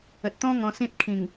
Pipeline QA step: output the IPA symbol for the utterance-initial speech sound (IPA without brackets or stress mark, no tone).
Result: ə